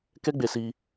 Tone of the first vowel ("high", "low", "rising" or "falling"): high